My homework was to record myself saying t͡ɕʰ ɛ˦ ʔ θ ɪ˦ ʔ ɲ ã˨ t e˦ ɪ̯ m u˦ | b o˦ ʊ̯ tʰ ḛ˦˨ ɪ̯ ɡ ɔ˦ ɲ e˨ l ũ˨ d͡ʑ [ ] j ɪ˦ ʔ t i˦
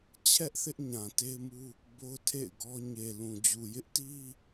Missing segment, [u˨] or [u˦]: u˨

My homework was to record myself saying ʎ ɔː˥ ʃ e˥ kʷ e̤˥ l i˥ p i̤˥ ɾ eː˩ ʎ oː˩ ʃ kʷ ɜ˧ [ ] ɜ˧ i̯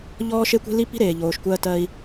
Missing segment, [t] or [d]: t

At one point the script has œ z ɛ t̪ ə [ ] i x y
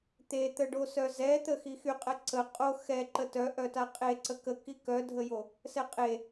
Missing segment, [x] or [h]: x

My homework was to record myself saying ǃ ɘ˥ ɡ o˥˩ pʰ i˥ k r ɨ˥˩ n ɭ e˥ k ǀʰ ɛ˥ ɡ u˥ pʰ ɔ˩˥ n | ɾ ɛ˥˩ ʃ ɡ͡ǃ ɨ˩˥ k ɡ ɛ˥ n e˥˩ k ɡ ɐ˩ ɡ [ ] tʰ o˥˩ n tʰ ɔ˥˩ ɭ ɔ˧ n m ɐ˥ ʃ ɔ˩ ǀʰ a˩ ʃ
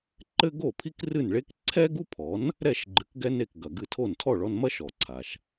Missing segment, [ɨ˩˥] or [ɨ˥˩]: ɨ˥˩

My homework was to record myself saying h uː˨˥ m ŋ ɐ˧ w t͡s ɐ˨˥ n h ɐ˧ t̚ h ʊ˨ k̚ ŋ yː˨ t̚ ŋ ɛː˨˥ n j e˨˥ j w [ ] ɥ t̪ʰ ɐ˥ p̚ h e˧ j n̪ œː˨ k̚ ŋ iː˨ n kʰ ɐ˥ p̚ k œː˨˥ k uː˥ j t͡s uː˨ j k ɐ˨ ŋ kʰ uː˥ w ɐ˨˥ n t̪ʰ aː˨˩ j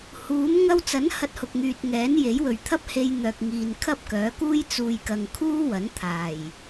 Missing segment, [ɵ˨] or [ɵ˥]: ɵ˨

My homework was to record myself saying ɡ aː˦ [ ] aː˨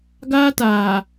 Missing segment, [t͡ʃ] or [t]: t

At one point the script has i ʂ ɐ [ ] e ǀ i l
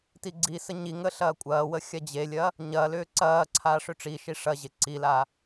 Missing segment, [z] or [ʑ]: ʑ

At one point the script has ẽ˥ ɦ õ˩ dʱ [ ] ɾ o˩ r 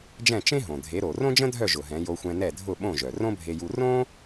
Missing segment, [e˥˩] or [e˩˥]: e˩˥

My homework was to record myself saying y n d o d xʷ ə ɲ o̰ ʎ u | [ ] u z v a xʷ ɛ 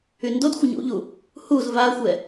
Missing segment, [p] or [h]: h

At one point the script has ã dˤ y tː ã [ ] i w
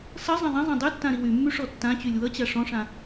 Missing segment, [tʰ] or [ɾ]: ɾ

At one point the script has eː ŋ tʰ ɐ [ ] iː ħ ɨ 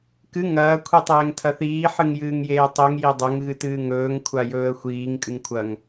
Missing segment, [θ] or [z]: θ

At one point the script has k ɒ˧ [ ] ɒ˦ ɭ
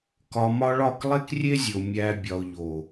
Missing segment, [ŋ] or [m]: m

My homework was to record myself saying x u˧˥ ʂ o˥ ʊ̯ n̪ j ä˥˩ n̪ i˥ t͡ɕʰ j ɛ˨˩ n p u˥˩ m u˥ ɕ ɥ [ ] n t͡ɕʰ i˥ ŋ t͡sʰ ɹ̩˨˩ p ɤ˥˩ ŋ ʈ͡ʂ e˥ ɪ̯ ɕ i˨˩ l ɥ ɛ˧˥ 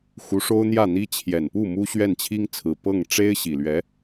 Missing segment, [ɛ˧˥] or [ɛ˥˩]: ɛ˥˩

